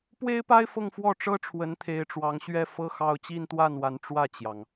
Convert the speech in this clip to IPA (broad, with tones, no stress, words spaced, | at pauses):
pwe˥ɪ̯pa˥ɪ̯ fɤ˥˧ŋfwɔ˥˩ ʈ͡ʂɤ˥ʈ͡ʂʰwə˧˥n t̪ʰe˧˥ɪ̯ʈ͡ʂwɑ˧˥ŋ ɕɥɛ˥fɤ˥˧xɑ˥˧ʊ̯ t͡ɕi˥˧nt̪wa˥˩nwa˧˥n ʈ͡ʂwä˥˩t͡ɕjɑ˩ŋ